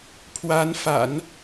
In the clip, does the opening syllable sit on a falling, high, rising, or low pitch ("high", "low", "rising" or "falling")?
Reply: rising